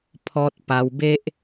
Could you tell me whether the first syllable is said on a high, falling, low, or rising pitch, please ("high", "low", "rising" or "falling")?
high